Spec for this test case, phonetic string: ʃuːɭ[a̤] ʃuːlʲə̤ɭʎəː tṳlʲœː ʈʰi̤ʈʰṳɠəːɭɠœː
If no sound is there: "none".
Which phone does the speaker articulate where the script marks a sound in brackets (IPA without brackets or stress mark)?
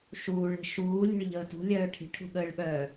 ə̤